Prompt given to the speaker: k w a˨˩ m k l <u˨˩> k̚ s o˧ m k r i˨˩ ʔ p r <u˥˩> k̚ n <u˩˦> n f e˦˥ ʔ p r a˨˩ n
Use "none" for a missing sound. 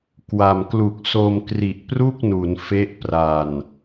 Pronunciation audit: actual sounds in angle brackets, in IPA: u˨˩, u˥˩, u˩˦

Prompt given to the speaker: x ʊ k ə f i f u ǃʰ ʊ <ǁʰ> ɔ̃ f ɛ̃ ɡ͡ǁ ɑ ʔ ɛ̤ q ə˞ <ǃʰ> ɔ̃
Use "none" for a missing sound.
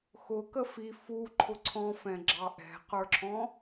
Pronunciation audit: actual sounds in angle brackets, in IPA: ǀʰ, ǁʰ

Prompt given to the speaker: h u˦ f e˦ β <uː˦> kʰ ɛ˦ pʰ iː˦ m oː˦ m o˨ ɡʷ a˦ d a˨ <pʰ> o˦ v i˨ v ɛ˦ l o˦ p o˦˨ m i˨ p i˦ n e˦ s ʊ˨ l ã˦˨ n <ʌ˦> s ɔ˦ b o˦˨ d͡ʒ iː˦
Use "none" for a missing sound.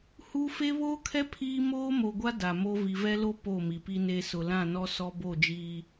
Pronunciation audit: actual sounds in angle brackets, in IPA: oː˦, m, ɔ˦

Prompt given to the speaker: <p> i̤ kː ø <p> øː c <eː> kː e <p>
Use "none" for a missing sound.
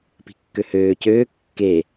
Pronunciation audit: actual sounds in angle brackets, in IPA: p, h, øː, none

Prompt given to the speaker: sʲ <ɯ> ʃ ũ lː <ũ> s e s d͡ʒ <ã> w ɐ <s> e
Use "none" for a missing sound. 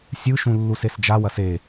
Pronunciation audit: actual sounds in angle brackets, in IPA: ɯ, u, a, s

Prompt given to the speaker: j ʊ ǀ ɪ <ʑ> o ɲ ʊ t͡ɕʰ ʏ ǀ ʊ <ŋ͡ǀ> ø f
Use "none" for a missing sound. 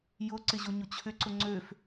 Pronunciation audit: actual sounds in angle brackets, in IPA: ʑ, ŋ͡ǀ

